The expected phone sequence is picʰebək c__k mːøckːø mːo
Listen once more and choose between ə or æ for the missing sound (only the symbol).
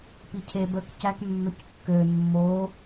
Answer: æ